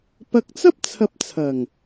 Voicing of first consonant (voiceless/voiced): voiceless